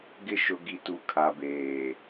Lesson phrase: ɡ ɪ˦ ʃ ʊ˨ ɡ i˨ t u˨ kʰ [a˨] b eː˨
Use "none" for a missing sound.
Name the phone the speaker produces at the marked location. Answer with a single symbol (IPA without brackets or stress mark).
a˨